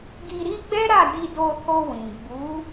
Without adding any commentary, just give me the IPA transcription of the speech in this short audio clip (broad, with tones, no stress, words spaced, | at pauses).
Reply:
ɡi˧ɾi˦ ɡ͡bɛ˦ɾa˦˨ di˧do˧ ho˧wĩ˨ ɡ͡bu˨˦